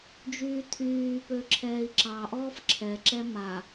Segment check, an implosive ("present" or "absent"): absent